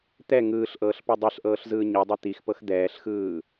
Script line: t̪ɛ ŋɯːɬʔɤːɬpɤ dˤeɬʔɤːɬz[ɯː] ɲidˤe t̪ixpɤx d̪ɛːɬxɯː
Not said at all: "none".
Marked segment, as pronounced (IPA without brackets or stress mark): ɯː